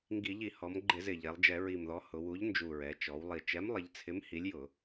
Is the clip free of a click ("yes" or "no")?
no